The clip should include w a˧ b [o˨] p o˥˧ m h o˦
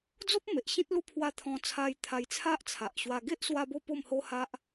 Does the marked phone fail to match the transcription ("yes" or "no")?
yes